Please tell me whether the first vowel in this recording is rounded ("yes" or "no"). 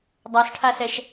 no